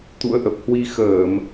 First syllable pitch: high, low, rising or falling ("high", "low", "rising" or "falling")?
rising